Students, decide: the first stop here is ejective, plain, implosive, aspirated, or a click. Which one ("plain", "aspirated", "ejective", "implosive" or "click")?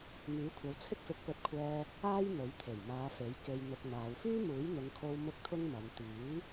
aspirated